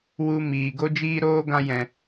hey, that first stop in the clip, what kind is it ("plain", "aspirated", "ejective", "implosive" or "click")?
plain